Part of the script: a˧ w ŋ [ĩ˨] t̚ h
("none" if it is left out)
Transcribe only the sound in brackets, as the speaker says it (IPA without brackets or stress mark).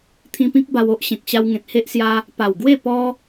ẽ˨